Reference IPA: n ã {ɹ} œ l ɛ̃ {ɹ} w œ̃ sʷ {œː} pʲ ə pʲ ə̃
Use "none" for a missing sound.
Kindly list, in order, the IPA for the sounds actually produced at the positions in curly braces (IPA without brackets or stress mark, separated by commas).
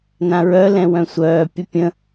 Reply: ɹ, none, œː